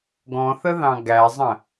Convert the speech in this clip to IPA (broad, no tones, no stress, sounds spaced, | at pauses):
ɡ ɔ̃ θ ə ð ɑ̃ ɡ æ zˤ ə̃